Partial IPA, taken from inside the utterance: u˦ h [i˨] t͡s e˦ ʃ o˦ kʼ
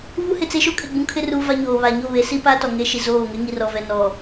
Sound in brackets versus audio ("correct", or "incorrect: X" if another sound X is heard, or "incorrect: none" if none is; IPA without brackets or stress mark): incorrect: ɪ˨